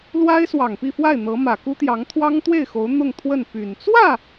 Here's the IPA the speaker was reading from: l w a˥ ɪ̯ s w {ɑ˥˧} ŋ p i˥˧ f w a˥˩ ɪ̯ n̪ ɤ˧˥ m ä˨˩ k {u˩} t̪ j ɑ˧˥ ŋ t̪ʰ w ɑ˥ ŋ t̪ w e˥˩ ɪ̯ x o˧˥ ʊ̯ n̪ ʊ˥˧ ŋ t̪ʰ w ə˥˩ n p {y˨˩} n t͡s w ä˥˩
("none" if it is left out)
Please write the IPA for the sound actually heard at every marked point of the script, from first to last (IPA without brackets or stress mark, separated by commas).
ɑ˨˩, u˥, y˨˩